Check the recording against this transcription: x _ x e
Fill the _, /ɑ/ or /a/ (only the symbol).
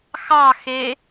ɑ